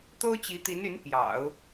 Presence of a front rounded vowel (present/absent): present